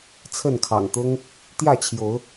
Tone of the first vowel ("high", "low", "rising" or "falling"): falling